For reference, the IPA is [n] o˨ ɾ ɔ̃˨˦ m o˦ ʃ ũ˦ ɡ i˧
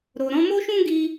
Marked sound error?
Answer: yes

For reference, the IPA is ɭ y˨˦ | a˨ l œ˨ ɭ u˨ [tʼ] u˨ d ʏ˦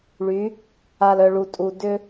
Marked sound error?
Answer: no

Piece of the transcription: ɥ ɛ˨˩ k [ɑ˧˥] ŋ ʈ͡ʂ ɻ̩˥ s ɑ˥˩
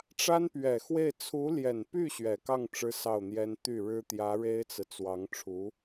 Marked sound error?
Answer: yes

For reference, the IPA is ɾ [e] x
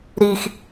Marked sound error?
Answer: yes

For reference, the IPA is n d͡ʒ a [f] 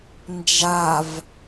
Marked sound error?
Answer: yes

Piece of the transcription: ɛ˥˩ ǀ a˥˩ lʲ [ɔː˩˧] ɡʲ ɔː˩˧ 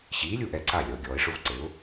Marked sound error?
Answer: yes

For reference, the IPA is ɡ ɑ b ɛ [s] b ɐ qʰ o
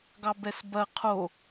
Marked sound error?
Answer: no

